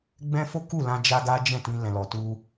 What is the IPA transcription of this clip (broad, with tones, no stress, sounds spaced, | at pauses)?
ɡ͡b ɛ̃˦ f o˦ k u˦˨ l ã˧ d͡ʒ a˦ ɡ a˦ d͡ʒ ɛ̃˦˨ t ĩ˧ l ɛ̃˨ l ɔ˨ t u˧